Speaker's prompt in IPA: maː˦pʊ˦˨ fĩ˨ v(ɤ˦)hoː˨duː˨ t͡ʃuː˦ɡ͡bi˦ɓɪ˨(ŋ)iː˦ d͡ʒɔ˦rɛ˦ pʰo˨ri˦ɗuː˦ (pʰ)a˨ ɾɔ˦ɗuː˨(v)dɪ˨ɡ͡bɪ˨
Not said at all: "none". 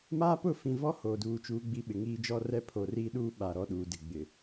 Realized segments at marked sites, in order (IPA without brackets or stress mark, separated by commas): ɔ˦, ŋ, ɓ, none